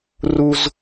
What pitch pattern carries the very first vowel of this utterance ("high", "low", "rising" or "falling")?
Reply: high